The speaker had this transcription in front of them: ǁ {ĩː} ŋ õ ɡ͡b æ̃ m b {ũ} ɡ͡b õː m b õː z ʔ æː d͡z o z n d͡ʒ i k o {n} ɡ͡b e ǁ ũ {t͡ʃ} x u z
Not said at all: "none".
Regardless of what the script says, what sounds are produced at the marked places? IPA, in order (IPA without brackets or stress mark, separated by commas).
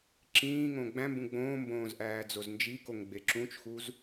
ĩː, ũ, ŋ, t͡ʃ